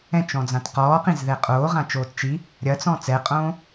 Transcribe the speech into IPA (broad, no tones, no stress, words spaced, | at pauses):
ɛ̃t͡ʃɔ̃d͡zãt qɔːqĩzðɛ qʼoːʁãt͡ʃoːt t͡ʃi | ɾʲɐt͡sɔ̃ t͡sɛqʼõː